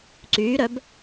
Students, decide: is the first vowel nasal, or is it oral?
oral